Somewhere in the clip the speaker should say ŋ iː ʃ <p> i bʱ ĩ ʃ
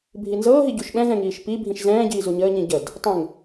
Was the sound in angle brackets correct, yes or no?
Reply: yes